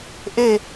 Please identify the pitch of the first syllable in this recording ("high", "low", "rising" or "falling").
falling